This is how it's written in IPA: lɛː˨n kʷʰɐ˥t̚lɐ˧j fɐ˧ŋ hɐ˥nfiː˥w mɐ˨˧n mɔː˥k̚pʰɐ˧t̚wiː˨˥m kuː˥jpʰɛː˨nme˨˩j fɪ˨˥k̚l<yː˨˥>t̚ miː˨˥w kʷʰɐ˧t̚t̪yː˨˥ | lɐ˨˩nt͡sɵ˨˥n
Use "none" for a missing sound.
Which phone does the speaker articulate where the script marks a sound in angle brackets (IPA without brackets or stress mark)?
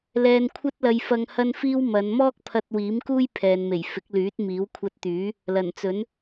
yː˨˥